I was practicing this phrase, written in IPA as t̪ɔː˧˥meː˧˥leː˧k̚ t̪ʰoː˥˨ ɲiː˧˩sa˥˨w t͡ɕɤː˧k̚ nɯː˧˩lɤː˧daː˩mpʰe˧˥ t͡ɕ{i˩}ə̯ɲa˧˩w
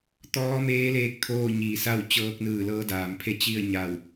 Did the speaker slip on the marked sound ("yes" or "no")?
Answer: yes